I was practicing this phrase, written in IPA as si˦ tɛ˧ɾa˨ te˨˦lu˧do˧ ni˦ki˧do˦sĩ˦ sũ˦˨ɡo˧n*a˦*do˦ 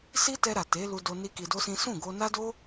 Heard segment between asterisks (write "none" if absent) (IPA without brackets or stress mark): a˦